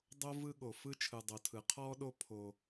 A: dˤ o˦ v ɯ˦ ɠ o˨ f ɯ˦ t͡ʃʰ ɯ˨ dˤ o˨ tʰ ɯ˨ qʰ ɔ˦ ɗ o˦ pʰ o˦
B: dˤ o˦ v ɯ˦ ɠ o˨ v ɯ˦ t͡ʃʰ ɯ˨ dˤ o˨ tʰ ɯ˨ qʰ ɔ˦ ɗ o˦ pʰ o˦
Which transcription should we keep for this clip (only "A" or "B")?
A